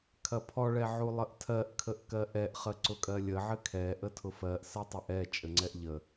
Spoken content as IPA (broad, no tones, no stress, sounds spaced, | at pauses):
kʰ ɐ pʰ ɔ ɭ ɛ ʕ u lˠ ə ʔ tʰ ɜ ʔ kʰ ə ʔ k ɜ ʔ ɛ ʔ χ ə ǀ ʊ kʼ ɜ lʲ ə ʕ ɘ kʰ ɛ ʔ ə tʰ ʊ f ɜ ʔ s ɜ tˤ ɛ ʔ ɛ t͡ʃʼ ɘ ŋ͡ǀ ɛ ʔ ʎ ə